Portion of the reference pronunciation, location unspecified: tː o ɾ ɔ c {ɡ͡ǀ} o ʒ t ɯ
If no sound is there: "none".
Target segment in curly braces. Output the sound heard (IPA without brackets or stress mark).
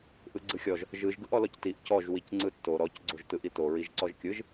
ɡ͡ǀ